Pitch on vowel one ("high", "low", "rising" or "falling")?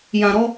low